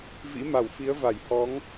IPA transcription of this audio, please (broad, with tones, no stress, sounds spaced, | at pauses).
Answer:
v ḭ˧˥ m a˧˩ w f i˨˦ ə̯ v a˧˩ j h ɔ˨˦ ŋ